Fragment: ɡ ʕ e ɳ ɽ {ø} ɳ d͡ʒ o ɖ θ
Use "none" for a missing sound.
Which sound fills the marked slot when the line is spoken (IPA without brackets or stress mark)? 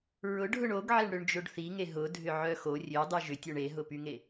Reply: ø